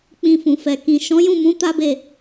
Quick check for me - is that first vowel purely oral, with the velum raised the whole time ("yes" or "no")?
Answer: no